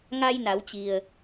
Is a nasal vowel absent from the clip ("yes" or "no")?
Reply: yes